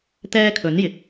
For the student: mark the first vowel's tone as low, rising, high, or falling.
high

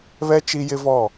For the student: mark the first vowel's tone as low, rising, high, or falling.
high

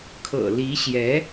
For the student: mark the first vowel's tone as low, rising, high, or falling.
low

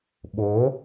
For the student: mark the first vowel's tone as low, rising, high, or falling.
rising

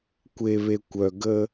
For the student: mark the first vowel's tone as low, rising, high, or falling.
low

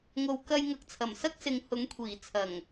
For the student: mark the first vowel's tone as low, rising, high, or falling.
low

